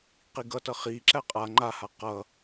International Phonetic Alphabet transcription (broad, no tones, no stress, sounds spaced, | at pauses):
q i ɡ ʌ t ʌ χ i ǁ æ qʼ a ŋ͡ǃ a h a q ʌ